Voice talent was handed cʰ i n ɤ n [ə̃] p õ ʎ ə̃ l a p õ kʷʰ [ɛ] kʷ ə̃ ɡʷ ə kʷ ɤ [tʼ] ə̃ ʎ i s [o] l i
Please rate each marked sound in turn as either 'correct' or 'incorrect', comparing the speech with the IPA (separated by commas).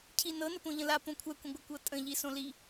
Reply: incorrect, correct, correct, incorrect